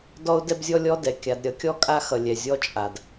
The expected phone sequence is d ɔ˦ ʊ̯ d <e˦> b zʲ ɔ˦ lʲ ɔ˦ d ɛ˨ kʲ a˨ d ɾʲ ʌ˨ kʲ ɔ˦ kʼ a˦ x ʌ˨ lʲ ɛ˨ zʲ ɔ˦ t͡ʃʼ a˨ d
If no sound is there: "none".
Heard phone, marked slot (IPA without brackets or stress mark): ɛ˦